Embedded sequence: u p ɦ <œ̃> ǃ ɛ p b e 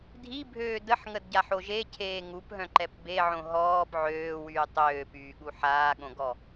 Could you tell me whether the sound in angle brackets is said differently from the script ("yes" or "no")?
no